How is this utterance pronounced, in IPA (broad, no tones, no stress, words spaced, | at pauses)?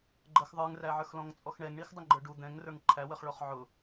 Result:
ɡ͡ǃəx ðˤə˞ŋræʕə˞xlɔ̃ŋ t͡sʼɔxɳɛŋɳix dˤəŋɡ͡ǃə˞ɖu d̪ɛ̃ŋrə˞ŋ ǃʰæwəχɭɔχ ʕʊ